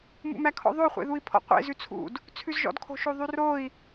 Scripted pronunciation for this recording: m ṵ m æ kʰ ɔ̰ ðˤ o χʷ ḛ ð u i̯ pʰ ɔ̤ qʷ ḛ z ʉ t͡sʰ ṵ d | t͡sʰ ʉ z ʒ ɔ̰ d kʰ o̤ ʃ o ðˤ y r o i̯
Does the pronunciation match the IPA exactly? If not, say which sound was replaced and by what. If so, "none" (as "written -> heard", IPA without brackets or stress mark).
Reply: ɔ̤ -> ɔ̰